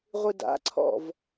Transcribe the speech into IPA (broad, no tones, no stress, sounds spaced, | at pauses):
ʁʷ ɨ d a̰ ǀʰ ɔ̰ v